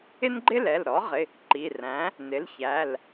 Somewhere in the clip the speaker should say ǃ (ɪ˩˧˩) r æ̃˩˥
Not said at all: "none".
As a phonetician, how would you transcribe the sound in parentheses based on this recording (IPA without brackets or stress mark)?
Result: i˩˧˩